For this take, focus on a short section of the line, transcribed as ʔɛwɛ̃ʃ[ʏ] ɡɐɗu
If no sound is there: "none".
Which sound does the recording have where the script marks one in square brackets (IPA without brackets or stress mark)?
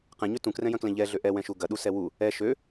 u